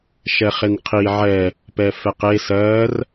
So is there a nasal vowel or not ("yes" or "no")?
no